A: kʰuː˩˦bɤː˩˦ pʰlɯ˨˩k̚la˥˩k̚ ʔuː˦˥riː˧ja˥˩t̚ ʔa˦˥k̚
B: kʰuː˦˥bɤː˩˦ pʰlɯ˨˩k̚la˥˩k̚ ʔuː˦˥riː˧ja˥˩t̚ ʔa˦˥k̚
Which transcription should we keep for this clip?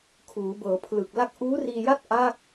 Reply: A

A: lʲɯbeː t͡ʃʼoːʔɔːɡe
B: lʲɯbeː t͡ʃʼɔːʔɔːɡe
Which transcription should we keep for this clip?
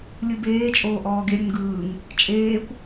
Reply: A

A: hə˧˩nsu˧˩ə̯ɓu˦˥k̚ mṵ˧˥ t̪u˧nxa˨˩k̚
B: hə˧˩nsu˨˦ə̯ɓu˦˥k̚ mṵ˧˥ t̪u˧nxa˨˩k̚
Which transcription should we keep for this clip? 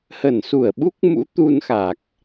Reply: A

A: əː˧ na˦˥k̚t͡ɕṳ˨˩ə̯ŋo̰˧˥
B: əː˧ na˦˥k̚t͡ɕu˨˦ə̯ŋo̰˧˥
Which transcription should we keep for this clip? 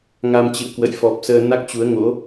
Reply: B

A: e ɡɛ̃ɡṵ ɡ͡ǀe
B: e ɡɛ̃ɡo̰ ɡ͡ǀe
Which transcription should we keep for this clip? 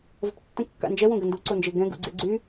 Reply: A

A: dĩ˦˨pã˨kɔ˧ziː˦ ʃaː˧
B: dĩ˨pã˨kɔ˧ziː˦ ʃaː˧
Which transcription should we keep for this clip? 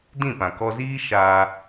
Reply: A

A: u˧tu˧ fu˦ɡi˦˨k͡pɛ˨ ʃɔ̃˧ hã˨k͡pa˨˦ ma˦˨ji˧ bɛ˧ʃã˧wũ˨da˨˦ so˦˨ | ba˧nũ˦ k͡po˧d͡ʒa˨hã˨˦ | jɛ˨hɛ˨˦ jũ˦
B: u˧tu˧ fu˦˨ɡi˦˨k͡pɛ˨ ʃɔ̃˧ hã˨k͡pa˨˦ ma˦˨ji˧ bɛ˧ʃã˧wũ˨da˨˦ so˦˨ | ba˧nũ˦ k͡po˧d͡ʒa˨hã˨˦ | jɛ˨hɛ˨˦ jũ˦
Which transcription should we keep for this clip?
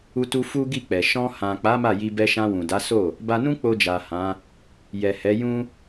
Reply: A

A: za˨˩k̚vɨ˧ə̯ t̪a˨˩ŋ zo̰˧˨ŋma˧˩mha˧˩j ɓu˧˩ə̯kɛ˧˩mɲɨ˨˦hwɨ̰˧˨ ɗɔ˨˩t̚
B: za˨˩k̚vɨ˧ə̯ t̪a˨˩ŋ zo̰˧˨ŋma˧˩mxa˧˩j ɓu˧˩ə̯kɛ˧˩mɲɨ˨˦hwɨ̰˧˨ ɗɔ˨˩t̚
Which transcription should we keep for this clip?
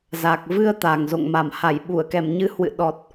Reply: A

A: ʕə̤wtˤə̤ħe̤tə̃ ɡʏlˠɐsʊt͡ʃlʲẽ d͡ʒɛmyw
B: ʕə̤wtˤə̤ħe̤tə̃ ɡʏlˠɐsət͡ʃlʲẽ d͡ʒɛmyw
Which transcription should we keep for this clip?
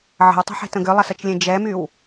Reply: B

